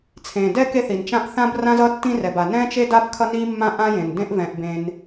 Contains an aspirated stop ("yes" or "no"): yes